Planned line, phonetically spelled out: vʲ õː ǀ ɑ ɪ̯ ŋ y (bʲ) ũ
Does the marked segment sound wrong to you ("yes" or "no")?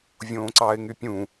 yes